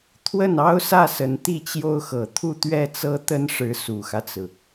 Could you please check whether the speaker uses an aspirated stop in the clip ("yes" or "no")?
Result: yes